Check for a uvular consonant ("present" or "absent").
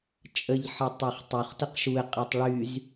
present